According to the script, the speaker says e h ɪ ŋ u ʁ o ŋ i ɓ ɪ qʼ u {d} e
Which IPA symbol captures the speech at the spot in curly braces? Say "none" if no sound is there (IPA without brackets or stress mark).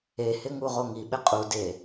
d